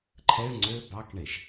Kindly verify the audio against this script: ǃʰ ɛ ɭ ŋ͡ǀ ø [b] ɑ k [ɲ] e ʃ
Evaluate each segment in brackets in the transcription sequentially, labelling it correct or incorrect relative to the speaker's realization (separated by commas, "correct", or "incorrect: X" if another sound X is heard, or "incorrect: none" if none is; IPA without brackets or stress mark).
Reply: correct, incorrect: ɳ